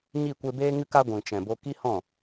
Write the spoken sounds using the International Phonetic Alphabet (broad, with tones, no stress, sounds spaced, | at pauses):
ɲ i˦˨ kʷ e˧ b eː˦ ŋ ɨ˧ k a˧ ɡʷ ĩ˨ t͡ʃ ɛ̃˨ b o˦ k i˦ h ɔ̃˦˨